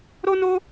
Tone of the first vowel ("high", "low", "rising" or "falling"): high